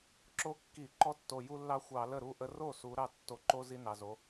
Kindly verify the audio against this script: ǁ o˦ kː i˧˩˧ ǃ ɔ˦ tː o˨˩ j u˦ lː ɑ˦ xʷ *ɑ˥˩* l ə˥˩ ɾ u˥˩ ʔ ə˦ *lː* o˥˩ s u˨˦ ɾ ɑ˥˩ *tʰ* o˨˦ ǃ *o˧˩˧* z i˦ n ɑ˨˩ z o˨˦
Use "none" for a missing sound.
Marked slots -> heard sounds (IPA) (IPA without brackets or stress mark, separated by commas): ɑ˧˩˧, r, tː, o˦